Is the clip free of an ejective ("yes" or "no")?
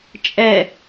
no